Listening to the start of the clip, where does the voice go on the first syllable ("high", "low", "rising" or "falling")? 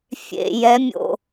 low